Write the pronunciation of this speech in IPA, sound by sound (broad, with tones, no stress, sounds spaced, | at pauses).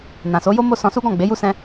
n ã˨ s o˨˦ j o˦ m o˦ s ɔ̃˧ s u˦ ɡ ɔ̃˦˨ ɡ͡b e˨˦ j u˦ s ɛ̃˦